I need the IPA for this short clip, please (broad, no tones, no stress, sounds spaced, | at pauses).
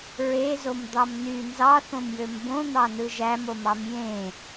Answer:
ɹ e z o m d̪ ɑ m n y n z ɑ θ õ m j ø m b õ n̪ ɑ n ɯ ʒ æ m o m ɑ m j ẽ